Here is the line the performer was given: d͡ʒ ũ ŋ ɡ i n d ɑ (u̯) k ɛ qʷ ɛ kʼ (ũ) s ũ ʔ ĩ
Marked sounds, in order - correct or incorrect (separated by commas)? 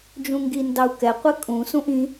correct, correct